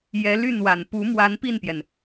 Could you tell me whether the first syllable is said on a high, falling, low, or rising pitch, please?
rising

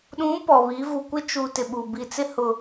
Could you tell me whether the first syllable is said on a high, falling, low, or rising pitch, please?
rising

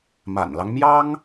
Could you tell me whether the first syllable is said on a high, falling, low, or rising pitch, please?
low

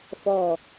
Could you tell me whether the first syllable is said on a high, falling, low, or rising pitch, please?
falling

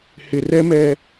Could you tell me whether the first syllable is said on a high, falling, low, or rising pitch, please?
low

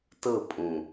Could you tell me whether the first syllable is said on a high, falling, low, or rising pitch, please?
falling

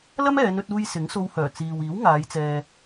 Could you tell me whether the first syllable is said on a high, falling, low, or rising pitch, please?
high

